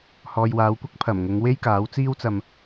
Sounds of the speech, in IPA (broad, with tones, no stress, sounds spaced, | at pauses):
h ɔː˨ j w aː˨˧ w kʷ ɐ˥ k̚ pʰ ɐ˨˩ m ŋ ʊ˨˧ ŋ w e˥ j k aː˨˥ w t͡s iː˥ w t͡s ɐ˧ m